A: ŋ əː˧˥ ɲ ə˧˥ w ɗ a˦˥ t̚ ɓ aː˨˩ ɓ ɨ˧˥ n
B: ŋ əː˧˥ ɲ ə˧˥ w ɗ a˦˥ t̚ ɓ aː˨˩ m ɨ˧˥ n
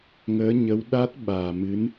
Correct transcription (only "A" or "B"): B